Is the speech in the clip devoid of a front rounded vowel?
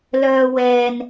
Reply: no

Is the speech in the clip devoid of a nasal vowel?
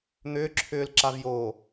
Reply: yes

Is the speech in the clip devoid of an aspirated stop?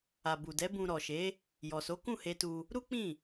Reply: yes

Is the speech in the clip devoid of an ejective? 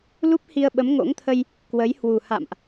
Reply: yes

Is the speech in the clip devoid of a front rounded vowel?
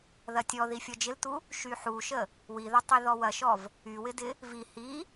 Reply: no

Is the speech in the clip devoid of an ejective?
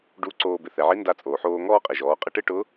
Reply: no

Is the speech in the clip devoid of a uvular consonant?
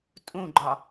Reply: yes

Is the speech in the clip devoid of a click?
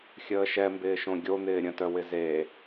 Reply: yes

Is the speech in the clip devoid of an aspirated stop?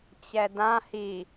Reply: yes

